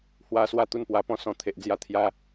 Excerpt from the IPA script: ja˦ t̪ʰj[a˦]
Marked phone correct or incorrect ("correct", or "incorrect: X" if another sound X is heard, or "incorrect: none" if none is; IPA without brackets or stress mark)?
correct